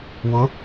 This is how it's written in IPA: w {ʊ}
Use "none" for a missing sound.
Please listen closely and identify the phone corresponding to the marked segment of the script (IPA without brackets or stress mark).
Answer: ʊ